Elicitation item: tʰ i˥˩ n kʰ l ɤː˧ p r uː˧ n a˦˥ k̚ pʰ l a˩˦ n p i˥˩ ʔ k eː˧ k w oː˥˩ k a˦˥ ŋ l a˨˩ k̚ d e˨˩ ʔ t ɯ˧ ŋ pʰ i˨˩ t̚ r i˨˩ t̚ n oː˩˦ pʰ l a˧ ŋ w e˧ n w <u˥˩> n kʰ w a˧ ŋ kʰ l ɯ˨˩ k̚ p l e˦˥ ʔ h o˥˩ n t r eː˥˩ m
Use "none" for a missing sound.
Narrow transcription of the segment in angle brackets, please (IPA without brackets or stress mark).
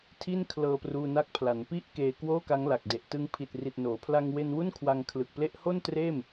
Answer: u˥˩